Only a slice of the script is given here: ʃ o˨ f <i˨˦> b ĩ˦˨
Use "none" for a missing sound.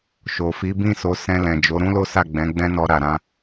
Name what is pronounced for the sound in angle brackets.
i˨˦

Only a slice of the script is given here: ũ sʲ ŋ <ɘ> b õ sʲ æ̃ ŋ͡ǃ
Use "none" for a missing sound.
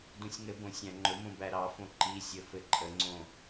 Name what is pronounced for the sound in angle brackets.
ɘ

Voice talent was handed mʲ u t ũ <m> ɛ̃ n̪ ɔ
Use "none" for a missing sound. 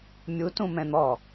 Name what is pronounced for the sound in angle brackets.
m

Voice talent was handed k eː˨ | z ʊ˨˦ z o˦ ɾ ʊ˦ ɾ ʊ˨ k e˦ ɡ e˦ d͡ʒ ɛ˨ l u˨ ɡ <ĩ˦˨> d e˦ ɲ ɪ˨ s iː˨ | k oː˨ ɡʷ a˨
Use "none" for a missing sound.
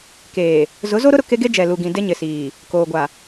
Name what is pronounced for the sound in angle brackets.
ĩ˨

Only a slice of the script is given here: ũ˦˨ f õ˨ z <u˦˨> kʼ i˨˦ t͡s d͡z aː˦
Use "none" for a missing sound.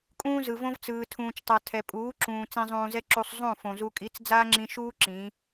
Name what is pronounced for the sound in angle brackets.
u˧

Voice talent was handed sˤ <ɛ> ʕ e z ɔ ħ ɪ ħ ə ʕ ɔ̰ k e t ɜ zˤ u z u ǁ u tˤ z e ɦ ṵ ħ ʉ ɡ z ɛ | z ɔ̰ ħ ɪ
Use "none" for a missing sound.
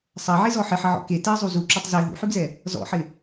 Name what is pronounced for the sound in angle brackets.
ɜ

